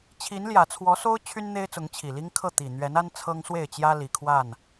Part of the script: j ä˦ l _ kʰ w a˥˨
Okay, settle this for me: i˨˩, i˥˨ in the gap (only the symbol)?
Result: i˨˩